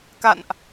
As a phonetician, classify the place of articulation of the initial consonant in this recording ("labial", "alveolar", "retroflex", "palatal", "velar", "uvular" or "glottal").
velar